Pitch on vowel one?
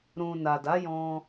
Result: low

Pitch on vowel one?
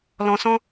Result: low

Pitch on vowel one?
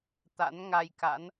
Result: rising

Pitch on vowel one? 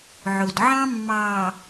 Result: low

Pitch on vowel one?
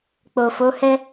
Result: low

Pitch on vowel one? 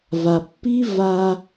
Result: low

